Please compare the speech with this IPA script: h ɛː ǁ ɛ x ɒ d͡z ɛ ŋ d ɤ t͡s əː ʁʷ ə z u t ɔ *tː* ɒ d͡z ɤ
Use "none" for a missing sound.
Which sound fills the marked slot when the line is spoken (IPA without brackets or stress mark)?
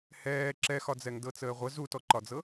ǃ